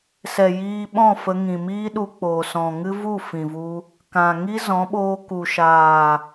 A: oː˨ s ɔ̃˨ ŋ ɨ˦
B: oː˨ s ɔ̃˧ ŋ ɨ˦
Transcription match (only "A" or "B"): A